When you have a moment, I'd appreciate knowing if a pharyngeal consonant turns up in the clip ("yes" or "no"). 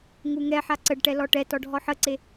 yes